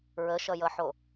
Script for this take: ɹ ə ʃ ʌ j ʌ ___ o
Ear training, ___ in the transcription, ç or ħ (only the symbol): ħ